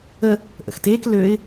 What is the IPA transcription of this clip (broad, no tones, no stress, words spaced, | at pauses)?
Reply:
ə | ʔə̰xteːk løɪ̯